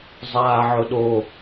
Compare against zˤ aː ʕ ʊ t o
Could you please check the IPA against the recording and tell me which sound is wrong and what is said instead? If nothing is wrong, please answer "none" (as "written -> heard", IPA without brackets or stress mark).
t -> ɗ